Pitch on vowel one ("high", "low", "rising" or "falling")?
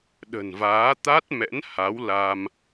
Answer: low